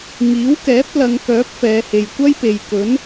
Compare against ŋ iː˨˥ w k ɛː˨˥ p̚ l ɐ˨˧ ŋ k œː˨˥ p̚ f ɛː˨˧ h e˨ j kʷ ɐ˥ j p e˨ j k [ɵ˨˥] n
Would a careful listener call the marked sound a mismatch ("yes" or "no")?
no